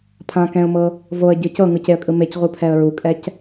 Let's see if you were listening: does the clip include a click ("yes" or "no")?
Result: no